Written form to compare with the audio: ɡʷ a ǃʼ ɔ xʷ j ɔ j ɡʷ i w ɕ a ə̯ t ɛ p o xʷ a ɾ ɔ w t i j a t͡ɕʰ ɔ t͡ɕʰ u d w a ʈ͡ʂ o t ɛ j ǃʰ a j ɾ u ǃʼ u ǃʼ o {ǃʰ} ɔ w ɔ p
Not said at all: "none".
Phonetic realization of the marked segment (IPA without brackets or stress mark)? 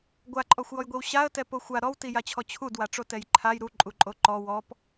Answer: ǃ